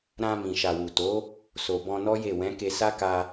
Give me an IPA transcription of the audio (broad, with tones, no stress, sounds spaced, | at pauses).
ɾ ã˧ m ĩ˨ ʃ a˨ w u˨ t o˨˦ | s o˨ b ɔ̃˧ n ɔ˦ j e˦˨ w ɛ̃˨˦ k e˧ s a˦ k a˧